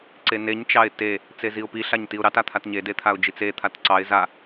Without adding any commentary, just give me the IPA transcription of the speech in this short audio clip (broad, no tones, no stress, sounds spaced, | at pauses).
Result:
ǀ e n e ɲ t͡ʃ ɑ ɪ̯ t e | t͡s e z i ʊ̯ p i ɬ a ɲ t i ʊ̯ ɾ ɑ t a t̪ʰ a t ɲ e d e t̪ʰ a ʊ̯ d͡ʒ i t͡s e t̪ʰ a t ǀ ɑ ɪ̯ z a